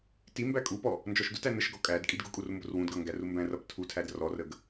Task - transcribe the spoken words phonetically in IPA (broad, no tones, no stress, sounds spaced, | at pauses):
t i m b æ kʼ u p ɔ | n d͡ʒ ɔ ʃ d ʊ t æ n ə ʃ ɡ ɔ kʼ æ d kʼ i d ɡ ʊ kʼ u r m b ʊ r w ũ d ɡ ʌ ŋ ɡ æ r u m b æ̃ r ʌ p tʰ u tʰ æ d r ɔ r ə ɡ